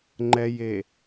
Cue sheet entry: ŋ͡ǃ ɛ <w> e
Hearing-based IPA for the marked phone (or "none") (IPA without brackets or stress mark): j